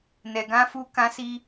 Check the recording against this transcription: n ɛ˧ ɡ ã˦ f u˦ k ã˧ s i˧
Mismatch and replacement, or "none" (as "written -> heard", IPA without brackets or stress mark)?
none